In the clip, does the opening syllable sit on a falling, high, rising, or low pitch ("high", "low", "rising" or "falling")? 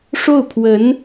falling